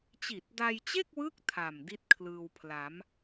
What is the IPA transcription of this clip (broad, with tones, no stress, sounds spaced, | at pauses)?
t͡ɕ i˨˩ t̚ d a˧ j t͡ɕ e˥˩ k̚ w ɯ˦˥ k̚ tʰ a˨˩ m d i˥˩ t̚ kʰ l ɯː˧ w pʰ l a˩˦ m